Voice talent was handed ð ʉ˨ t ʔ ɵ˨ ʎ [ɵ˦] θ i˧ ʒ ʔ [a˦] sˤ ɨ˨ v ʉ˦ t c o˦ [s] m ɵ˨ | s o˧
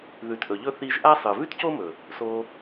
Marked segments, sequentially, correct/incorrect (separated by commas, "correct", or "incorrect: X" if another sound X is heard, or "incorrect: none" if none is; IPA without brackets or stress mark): correct, correct, incorrect: none